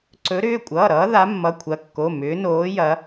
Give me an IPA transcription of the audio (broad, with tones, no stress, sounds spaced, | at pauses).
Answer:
ǀ ɵ˨˦ ɾ ʏː˩˧˩ kʷʼ ʌː˩˧˩ ɾ ʌː˨˦ ð a˨˦ mː ʌ˩˧˩ kʷʰ ɐ˨˦ kː o˩˧˩ m ʏː˨˦ n oː˨˦ j ɐ˨˦